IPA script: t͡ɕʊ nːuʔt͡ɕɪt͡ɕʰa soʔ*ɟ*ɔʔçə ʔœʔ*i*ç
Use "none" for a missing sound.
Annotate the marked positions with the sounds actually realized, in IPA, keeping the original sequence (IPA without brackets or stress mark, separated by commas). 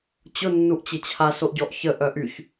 ɟ, y